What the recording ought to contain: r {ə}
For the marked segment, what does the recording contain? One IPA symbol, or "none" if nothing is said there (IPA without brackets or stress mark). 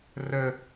ə